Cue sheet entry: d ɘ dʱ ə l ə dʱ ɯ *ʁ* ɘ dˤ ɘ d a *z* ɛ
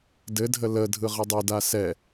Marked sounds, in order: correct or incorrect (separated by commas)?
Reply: correct, incorrect